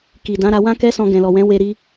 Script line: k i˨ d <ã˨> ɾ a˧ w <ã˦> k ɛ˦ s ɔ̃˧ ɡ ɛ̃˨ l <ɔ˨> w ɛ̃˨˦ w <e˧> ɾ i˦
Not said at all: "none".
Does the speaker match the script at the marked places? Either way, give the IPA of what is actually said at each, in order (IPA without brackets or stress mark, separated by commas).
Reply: ã˨˦, ã˦, ɔ˨, e˧